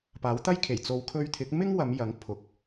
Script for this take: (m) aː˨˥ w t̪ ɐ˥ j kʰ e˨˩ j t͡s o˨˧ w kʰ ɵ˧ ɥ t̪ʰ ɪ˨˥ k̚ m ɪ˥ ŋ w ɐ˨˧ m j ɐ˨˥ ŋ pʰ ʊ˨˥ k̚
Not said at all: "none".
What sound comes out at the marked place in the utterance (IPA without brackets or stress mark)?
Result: p